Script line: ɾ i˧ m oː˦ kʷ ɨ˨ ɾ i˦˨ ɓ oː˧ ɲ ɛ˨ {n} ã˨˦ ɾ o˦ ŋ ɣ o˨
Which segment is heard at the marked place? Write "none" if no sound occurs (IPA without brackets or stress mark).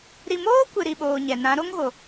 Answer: n